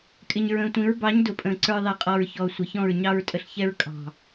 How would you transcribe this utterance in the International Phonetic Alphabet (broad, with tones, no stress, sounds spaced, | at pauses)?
kʼ ɪ˨ ɲ ɹ ə̃ː˨ tʷ ĩ˨˦ ɹ b ɑ˨˦ ɲ d ʊ˨ pʼ ə̃ː˨ ǀ ə˞˧ ðˤ ɛ˨ qʼ ɔ˨ ɹ ç ɔ˨ sʷ ɪ˨ ç ɔ̃˦˨ ɹ ɲ ɑ˧ ɹ tʼ ə˨ ɬ ç ɛ˧ ɹ kʼ ɑ̤˨